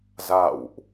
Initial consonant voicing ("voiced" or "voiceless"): voiced